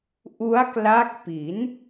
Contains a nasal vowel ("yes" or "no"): no